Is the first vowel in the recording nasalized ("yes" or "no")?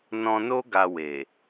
yes